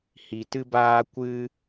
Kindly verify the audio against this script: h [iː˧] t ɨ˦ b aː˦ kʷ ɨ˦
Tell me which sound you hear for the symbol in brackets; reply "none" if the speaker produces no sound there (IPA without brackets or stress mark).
i˧